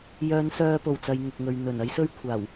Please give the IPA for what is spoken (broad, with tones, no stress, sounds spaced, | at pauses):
j œː˨˧ n s œː˧ p o˨˩ w t͡s ɐ˨ j ŋ ʊ˨ k̚ ŋ ɵ˨ ɥ n̪ ɵ˨˩ n ɐ˥ j s ɵ˥ ɥ kʷʰ aː˨˩ w